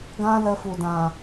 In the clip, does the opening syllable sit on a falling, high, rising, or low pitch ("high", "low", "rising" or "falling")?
high